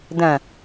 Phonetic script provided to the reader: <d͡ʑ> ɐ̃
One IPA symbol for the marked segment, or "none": d̪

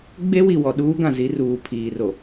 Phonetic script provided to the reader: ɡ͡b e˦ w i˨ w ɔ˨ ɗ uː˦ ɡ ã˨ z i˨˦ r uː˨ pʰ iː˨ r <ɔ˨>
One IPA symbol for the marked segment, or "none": o˨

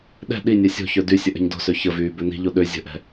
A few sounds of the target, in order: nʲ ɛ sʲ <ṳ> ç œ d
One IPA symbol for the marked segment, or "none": o̤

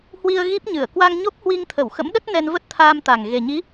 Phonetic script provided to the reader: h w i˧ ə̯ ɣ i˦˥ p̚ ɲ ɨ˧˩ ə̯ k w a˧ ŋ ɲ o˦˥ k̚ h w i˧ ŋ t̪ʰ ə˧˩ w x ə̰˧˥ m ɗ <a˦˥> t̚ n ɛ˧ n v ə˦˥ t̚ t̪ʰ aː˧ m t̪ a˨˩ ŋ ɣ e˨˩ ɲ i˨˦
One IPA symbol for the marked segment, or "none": ə˦˥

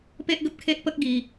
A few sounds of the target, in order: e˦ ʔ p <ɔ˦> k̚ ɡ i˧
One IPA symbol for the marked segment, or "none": ə˦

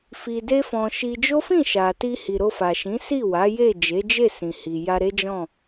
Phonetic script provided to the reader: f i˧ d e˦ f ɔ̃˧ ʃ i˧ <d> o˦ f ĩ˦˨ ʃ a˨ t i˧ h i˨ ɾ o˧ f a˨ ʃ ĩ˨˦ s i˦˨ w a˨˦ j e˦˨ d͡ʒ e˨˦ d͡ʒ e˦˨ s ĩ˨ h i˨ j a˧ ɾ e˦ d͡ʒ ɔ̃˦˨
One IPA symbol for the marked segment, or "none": d͡ʒ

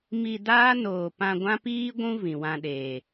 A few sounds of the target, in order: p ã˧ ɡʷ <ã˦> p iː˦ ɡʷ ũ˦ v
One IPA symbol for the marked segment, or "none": ã˦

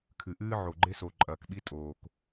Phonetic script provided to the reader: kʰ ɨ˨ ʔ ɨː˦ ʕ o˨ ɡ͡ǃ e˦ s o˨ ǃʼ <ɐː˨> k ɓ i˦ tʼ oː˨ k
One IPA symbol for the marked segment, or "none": ɐː˨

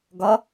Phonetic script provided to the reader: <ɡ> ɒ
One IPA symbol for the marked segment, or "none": ɡ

